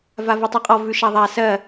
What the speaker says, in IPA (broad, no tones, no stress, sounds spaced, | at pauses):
v a v ɜ tˤ ʉ qʼ ɔ v ʉ ʃ a ðˤ a s ɜ